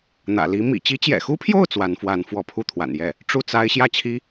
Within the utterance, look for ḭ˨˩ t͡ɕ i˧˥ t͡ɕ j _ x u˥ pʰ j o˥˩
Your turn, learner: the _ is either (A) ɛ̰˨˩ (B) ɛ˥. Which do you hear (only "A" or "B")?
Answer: A